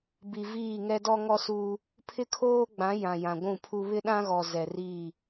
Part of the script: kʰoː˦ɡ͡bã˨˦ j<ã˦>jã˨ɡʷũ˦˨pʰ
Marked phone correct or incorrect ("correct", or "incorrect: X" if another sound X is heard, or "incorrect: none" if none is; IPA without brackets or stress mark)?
incorrect: ã˨